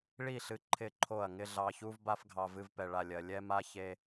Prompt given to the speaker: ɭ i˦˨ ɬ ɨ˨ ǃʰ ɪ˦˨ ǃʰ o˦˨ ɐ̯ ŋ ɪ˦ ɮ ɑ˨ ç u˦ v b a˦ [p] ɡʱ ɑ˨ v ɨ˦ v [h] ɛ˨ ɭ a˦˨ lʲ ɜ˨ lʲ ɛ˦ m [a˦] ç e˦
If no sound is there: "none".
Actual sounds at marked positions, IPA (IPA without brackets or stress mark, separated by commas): f, p, a˦